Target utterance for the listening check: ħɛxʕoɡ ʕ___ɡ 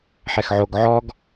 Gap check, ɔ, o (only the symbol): ɔ